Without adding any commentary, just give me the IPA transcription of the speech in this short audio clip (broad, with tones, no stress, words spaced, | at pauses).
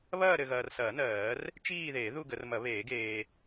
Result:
βɐː˥˧ɾɘ˨ɣɐː˨rsɐː˨˩˦ nɜː˨˩˦r | t͡ʃiː˥˧ðeː˨˩˦ ðu˥˧ɡə˨˩˦rmɐ˨˩˦ βeː˨˩˦ɡeː˨